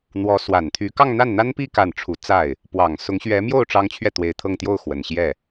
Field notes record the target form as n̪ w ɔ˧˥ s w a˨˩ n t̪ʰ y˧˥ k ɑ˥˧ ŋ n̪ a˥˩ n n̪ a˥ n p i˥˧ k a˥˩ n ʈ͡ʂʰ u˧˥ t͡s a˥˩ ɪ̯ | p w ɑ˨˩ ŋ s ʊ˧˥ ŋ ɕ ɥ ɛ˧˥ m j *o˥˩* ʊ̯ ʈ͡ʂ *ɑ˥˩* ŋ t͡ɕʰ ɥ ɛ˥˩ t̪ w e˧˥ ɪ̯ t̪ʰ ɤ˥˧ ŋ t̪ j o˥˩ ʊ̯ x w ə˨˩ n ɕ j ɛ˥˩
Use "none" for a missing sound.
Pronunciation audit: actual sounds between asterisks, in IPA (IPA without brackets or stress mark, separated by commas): o˥˩, ɑ˥